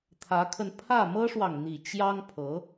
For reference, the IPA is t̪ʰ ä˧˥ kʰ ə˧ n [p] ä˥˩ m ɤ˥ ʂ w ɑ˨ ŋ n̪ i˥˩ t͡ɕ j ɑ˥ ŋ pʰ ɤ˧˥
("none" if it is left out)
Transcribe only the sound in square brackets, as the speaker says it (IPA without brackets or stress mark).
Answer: pʰ